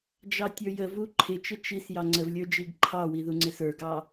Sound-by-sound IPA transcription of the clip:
d͡ʒ ɑ tʲ ə˞ j ə v u ǃʰ ɪ t͡ʃ ɪ t͡ʃ i s j ɑ ŋ͡ǀ ə v lʲ ə˞ d͡ʒ i ɡ ǃʰ ɑ w i ð u ŋ͡ǀ ɪ s ə˞ ɡ ɑ

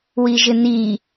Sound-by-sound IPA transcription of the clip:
w i ʒ ɪ n̪ i

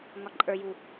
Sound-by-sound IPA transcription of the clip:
ŋ ɒ ǃʼ ə˞ j u

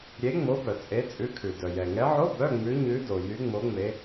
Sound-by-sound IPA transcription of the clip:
ɾʲ e˨˦ ŋ͡m o˨˦ b œ˩ t͡sʼ e˨˦ t͡sʼ ʉ˨˦ kʰ ʉ˩ d œ˩ j ɛ˩ ŋ ɛ˨˦ ʕ o˧˥˧ b œ˧˥˧ ŋ͡m ʉ˨˦ ɲ ʉ˨˦ d o˩ j y˨˦ ŋ͡m o˨˦ ŋ͡m e˨˦

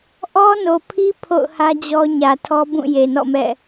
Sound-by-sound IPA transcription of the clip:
ʔ ɔ˦ n o˨ pʰ i˦ pʰ o̰˦˨ ʊ̯ h ä˦ d͡ʑ ɔ˦ ɲ ä˨ tʰ ɔ˦ b ũ˦˨ j e˨ n ɔ̰˦˨ m ɛ̰˦˨

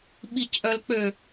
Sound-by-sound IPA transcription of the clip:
ɓ i c ʔ œ l k͡p ø

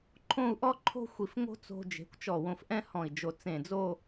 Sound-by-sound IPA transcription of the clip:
ǃʰ õ˥˧ u̯ ʔ ɔ˥ ǃʰ o̤˥ xʷ i˧˩ f ŋ o̤˥ t͡s o̤˧ d͡ʒ e̤˩˧ kʷ t͡ʃ ɔ˧˩ w õ˧ f ʔ ɛ̃˥ h ɔ̃˧˩ i̯ d͡ʒ o˧˩ t͡s ẽ˧˩ d͡z o˥˧

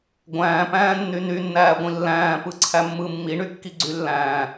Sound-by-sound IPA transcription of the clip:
ɡʷ æ̃ː p æ̃ː nː y n y nː æː ɡʷ ĩ lː æ̃ː p ɯ ǀʰ æ mː ɯ mː i ɳ y kː i ɡ͡ǀ y lː æ̃ː

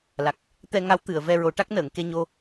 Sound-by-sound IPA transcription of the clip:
l a˨˩ k̚ | t̪ ɛ˧ ŋ a˧˥ w t̪ ɨ˨˩˨ ə̯ v ɛ˧ ɹ o˨˩˦ ʈ a˦˥ k̚ n əː˨˩˨ ŋ k e˧ ɲ o˧

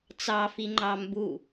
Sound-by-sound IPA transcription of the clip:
t͡s ɑ f i ŋ͡ǃ ɑ m b u

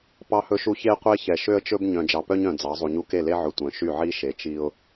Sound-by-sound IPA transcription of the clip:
p ɑ˦ h ɵ˦ ʃ u˦ ç e˦ qʷ e˦ ç ɛ˨ ʃ ø˦ ə̯ t͡ʃ ɵ˦ b ɲ œ̃˨ d͡ʒ ɑ˨ p œ˦ ɲ œ̃˨ d͡z ɑ˨˦ zˤ u˨ ɲ u˦ k e˦˨ l e˦ ʕ ɵ˨ tʷ œ̃˨˦ ʃ y˦˨ ʕ i˦ ʃ e˨ t͡ʃ i˦ ʊ̯

